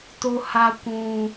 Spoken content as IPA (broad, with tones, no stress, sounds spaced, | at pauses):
t o˦ h a˦ kʷ ũ˦